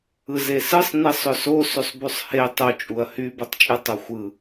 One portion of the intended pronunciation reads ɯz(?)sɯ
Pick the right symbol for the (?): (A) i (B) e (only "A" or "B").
B